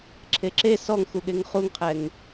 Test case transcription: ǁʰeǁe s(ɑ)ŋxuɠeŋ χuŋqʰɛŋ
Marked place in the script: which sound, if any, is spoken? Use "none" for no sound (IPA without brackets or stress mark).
ɔ